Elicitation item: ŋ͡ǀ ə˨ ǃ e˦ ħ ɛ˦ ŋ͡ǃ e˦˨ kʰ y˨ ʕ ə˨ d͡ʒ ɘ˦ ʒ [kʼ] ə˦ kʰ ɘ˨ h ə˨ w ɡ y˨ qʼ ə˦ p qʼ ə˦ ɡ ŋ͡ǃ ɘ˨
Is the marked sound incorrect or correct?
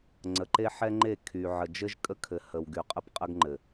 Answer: correct